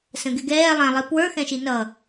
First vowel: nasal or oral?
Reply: nasal